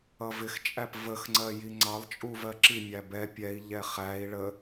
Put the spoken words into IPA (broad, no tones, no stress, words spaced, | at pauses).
ʌvɪxt͡ʃʼæp vəxŋ͡ǀɜ jiŋ͡ǀɑlˠ t͡ʃʼuvɜǁi mʲæbɛ pʲɛi̯ ʎɛχæi̯ ɭə